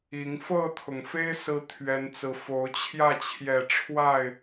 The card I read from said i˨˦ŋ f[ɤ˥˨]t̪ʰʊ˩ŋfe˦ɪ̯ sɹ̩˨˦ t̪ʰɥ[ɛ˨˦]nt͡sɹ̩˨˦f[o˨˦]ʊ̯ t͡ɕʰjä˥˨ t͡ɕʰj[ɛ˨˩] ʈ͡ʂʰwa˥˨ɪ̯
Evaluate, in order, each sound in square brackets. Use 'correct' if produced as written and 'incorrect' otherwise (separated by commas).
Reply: correct, correct, correct, correct